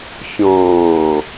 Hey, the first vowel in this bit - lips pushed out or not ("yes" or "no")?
yes